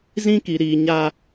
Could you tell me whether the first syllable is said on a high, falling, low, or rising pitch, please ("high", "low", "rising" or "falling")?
high